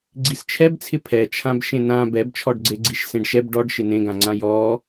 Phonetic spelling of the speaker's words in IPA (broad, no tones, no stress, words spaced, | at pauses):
ɡ͡ǀist͡ʃʰɛbt͡sʰɪ pʰɛt͡ʃʰãb ʃẽnã bɛbt͡ʃʰɔɖɡ͡ǀe ɡ͡ǀiʃsẽɖʃɛb ɖɔɖ ʃɪnẽɡãŋ͡ǀã jɔ